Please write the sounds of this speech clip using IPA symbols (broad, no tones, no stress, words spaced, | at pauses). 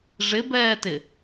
ʐɪbɛːtɪ